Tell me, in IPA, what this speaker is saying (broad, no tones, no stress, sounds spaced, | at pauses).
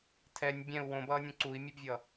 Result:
tʰ ɛ nʲ bʲ ɛ̃ u̯ w õ b ʌː nʲ ũ ǀ u i̯ mʲ u b vʲ ʌ